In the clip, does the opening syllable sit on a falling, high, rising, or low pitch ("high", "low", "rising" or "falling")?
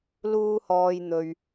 high